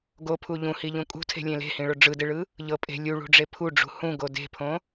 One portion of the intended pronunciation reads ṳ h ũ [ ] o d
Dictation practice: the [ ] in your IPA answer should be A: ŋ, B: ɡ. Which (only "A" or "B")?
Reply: B